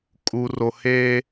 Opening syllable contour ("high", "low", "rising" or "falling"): low